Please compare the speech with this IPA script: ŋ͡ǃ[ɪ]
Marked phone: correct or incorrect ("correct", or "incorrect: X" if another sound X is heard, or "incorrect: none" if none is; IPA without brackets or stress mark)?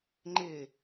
correct